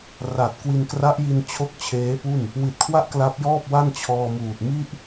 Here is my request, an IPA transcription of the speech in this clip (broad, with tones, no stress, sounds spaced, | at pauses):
r a˨˩ t̚ k w i˧ n k r a˦˥ ʔ j i˧ n t͡ɕʰ o˥˩ k̚ t͡ɕʰ eː˦˥ p u˥˩ n | w i˨˩ t̚ kʰ w a˦˥ ʔ k l a˦˥ p̚ j ɔː˥˩ p̚ w a˥˩ n t͡ɕʰ ɔː˧ m uː˨˩ t̚ m i˥˩ ʔ